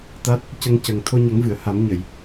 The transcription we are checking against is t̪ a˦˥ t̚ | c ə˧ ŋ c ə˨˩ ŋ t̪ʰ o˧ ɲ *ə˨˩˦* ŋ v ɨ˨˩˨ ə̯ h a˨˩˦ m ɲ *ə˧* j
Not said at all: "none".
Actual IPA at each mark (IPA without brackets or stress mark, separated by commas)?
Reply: ə˨˩˦, ə˨˩˨